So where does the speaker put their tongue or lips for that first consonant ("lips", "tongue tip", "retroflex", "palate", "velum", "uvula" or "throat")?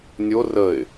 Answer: tongue tip